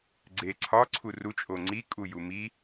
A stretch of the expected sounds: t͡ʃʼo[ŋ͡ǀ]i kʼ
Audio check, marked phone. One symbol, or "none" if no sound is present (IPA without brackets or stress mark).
ŋ͡ǀ